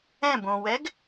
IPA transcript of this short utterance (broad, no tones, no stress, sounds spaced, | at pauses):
ɛ̃ b õ w ɛ ɡ